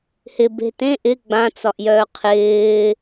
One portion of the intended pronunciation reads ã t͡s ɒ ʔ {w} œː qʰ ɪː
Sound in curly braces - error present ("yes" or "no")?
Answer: yes